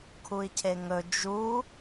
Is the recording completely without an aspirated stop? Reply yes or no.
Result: no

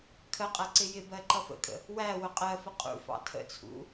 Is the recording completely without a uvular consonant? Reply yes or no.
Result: no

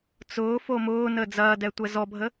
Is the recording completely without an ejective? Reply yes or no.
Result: yes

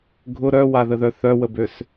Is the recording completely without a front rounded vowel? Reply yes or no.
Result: no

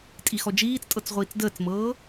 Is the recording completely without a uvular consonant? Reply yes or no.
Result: no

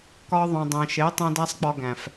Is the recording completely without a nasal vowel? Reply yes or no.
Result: no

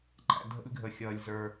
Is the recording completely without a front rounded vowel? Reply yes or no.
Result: yes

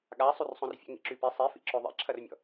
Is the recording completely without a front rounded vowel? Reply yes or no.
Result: no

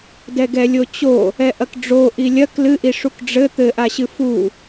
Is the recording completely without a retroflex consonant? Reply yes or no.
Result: no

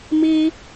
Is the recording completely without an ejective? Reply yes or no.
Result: yes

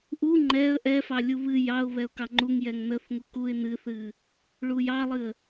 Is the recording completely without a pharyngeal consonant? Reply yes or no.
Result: yes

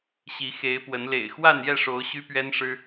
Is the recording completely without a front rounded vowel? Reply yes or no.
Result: no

